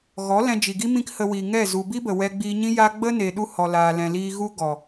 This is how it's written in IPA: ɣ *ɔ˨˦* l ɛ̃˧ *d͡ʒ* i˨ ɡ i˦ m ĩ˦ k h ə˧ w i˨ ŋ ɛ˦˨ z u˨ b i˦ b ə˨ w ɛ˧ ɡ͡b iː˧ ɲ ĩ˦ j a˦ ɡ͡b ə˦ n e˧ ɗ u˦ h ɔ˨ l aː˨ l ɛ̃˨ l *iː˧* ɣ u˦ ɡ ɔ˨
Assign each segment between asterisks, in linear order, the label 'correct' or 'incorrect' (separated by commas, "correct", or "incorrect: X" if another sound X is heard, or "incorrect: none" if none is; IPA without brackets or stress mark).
correct, correct, correct